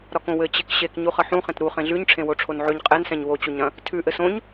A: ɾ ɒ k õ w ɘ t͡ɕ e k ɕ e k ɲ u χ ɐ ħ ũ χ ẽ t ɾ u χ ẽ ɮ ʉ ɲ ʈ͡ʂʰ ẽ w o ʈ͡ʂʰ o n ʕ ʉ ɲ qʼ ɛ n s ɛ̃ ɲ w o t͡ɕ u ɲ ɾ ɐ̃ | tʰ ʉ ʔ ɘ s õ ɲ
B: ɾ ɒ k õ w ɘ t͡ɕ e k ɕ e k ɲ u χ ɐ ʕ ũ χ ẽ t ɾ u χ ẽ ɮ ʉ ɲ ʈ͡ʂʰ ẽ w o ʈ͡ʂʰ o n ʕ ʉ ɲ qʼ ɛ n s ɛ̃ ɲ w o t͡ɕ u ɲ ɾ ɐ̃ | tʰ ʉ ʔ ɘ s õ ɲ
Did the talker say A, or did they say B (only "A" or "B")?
A